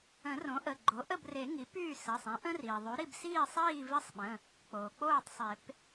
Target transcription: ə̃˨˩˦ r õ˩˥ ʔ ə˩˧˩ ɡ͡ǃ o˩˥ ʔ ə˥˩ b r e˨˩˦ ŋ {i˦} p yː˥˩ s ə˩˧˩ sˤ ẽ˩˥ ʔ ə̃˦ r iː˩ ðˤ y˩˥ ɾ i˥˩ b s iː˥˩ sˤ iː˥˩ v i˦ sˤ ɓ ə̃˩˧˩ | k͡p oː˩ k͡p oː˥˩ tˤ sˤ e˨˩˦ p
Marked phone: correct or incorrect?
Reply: incorrect